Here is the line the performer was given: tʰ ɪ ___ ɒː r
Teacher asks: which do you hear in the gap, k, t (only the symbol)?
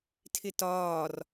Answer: t